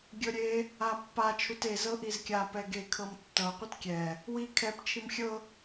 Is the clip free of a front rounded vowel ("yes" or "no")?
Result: yes